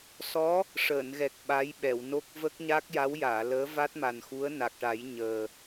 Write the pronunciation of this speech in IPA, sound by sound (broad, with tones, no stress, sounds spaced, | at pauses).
s ɔ˧˥ | ʂ əː˨˩˨ n ɣ ɛ˨˩ k̚ ɓ a˧˥ j ɓ ɛ˨˩˨ w n o˦˥ k̚ v ə˦˥ k̚ ɲ a˦˥ k̚ j a˧˥ w j aː˨˩˨ l əː˧˥ v a˦˥ t̚ m a˨˩ n x u˧˥ ə̯ n a˨˩ k̚ ʈ a˨˩˦ j ɲ əː˨˩